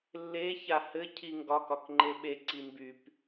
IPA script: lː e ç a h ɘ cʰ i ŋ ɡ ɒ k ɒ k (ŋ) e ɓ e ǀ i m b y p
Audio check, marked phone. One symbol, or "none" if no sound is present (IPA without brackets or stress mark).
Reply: ŋ͡ǃ